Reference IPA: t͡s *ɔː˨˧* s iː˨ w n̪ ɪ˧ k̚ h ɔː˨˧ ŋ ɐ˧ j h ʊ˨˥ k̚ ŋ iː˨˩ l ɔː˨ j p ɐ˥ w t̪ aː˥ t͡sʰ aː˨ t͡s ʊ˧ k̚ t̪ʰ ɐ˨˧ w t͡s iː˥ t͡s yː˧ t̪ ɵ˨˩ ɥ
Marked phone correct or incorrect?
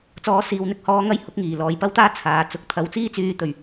correct